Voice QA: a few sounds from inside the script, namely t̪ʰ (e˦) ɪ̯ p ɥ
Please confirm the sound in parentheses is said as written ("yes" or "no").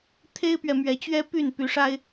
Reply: yes